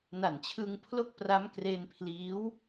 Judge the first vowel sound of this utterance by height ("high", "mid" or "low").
low